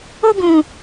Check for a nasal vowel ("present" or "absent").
present